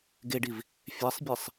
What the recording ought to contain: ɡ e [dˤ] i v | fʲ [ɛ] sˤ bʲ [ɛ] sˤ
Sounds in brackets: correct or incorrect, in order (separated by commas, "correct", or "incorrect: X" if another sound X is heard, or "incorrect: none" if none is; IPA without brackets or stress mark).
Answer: incorrect: ɖ, correct, incorrect: e